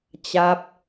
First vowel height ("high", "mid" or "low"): low